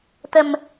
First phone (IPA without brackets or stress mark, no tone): t̪